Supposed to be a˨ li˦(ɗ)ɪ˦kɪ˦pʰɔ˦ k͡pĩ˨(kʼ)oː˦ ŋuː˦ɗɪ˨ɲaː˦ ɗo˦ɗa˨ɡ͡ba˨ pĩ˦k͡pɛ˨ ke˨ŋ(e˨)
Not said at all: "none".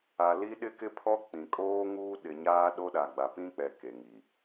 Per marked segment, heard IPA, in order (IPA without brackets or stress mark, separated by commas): ɗ, kʼ, i˨